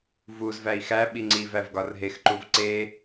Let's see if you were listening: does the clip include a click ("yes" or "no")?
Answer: yes